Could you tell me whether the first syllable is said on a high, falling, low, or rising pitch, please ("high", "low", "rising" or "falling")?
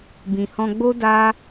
low